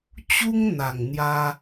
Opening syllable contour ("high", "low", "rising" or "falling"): high